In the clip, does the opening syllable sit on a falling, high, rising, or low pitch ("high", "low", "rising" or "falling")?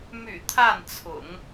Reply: low